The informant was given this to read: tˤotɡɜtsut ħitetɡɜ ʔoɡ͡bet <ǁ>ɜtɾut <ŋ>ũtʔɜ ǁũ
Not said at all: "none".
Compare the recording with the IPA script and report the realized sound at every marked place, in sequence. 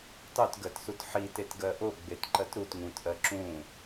ǃ, ŋ

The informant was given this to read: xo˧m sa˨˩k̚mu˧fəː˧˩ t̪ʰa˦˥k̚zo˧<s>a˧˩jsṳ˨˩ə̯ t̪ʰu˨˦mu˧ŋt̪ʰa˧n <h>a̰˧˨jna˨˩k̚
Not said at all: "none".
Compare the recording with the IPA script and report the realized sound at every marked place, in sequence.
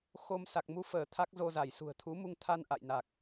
z, ʔ

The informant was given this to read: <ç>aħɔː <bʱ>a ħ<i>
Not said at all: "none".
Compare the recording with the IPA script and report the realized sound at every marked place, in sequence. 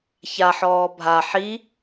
ç, bʱ, i

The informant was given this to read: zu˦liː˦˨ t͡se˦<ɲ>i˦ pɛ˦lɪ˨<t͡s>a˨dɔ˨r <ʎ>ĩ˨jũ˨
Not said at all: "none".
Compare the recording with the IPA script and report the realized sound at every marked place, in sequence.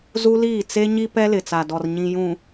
ɲ, t͡s, ɲ

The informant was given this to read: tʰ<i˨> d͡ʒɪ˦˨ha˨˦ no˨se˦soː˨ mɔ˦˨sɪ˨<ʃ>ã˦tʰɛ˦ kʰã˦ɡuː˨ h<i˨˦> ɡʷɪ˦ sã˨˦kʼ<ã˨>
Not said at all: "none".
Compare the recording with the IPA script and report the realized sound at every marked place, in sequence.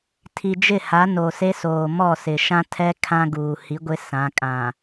i˨, ʃ, i˨˦, ã˨

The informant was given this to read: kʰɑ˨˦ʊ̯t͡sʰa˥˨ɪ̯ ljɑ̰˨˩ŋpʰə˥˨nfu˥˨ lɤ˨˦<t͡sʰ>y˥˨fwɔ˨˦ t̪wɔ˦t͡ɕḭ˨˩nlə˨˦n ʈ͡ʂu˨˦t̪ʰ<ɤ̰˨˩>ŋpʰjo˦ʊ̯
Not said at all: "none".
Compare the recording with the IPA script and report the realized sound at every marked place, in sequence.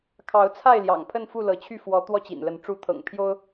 t͡ɕʰ, ɤ̰˨˩

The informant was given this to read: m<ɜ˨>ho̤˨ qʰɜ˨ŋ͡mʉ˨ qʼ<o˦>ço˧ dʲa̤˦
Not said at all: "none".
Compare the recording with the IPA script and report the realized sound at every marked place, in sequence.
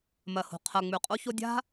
ɜ˨, o˧

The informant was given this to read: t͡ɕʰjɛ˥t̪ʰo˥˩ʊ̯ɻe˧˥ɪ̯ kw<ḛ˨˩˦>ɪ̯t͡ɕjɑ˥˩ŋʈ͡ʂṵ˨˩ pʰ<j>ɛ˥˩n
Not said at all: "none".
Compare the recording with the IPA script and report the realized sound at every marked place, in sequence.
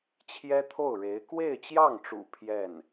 e˥˧, j

